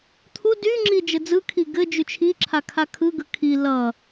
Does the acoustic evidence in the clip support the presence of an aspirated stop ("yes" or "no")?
yes